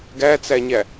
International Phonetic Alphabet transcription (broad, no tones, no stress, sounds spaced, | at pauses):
ɡ æ t͡s æ ɲ æ